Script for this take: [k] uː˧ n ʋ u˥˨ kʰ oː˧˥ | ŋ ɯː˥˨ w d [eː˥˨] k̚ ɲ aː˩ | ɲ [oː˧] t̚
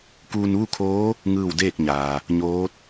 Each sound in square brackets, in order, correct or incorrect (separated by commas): correct, correct, incorrect